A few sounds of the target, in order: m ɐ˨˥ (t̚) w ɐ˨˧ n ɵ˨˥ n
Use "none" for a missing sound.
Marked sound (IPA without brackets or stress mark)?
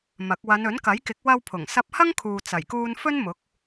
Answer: k̚